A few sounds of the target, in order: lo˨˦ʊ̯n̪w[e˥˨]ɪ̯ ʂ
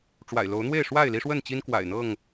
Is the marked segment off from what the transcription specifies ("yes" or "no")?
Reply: no